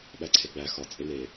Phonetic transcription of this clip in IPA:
ɓæǀʰeɡ͡bæ xɒ t͡sʼene

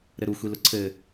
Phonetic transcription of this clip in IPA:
ɾɘɾu xʷilʊǀʰɘ

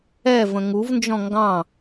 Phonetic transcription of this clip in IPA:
ɛvə̃ ŋuvnd͡ʒɔ̃ ŋɡɑ̃

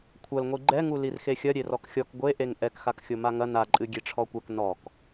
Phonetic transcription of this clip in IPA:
kʷʰɐlŋʷi ɡ͡ǃɛŋu lirxexʲɐ ɾʲerɔkxʲɔk ɡʷeʔeŋ ʔɛkxakxʲo maŋɐ naǃʼɨ ɡʲeʈ͡ʂʰɔkʷɛk nɔk

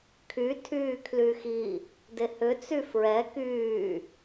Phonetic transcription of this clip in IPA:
kʰy tʰyːkʰlyxi | dehʏ t͡syfɹɛ kyː

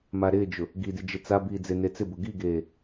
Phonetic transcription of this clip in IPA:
maɾɪːd͡ʒʊ | ɡidi d͡ʒɪt͡sabiː d͡zenet͡sɪbʊ ɡiɡeː

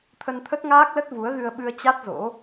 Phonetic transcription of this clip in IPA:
t̪ʰə˧nt̪ʰə˦˥t̚ŋaː˦˥k̚lə˦˥t̚ vu˨˦ə̯ɣɨ˧ə̯ ɓɨ˧ə̯ t͡ɕa˦˥t̚zo̰˧˥

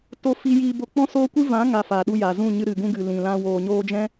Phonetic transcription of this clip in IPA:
to˧ fi˧jiː˧bo˧ k͡pɔ̃˦soː˦kʷɨ˦ vã˨˦ŋa˨ fa˨ɗu˧ja˨zũ˦˨ ɲɨ˧ɾɨ˨ɡũ˧ɡɨ˨ lĩ˨lã˧ woː˨ɲoː˧d͡ʒɛ̃˦

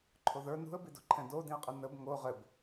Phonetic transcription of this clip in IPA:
ǃʰoðə˞ nṳə̯bido̤ǃʰɛ̃ dodĩə̯qʼə nəb ŋo ʁɘb

